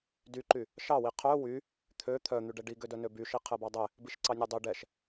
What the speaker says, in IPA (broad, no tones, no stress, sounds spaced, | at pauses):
d y ǃ y | ʃ ɑ w i qʰ œ w y | t̪ʰ ø t̪ʰ œ n̪ y ɖ ɛ ɖ i ɡ ø d œ n ø b y ʃ i qʰ ɛ b ɑ dˤ ɛ | b i ʃ ǀ ɑ nʲ ø dˤ ø ɖ ɛ ʃ